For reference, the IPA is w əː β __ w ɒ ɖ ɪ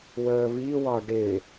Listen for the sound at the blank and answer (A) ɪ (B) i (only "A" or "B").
B